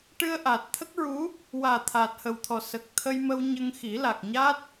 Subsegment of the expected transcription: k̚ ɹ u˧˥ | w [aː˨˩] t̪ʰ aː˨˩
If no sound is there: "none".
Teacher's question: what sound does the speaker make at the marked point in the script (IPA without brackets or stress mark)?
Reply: aː˨˩